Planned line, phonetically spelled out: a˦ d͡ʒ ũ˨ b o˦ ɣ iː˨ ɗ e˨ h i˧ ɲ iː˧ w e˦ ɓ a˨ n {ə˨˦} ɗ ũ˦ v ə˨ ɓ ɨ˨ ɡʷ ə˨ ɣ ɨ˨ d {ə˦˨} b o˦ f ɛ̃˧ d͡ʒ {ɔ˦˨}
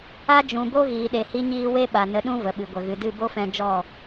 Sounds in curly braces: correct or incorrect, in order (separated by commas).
correct, incorrect, correct